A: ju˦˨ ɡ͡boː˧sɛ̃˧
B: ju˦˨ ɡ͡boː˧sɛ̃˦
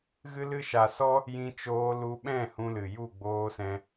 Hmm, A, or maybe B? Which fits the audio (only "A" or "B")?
A